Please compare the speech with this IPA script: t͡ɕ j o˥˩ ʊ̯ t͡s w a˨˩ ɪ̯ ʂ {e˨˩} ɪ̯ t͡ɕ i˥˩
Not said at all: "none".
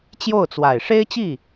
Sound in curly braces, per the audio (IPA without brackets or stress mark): e˥